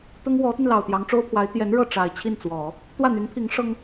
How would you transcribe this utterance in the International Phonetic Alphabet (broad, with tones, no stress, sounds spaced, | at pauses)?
t̪ ʊ˥ ŋ w ɔ˧˥ t̪ y˧ n l ɑ˨˩ ʊ̯ t̪ j ɑ˧˥ ŋ ʈ͡ʂ o˥ ʊ̯ pʰ w a˧˥ ɪ̯ t̪ j ɛ˧˥ n ɻ ɤ˥˩ ʈ͡ʂ a˨˩ ɪ̯ t͡ɕʰ i˥˩ n t͡s w ɔ˨˩˦ | t̪ w ä˥˩ n̪ y˧˥ n pʰ i˧˥ ŋ ʂ ɤ˥ ŋ